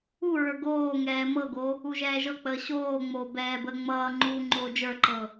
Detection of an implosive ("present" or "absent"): absent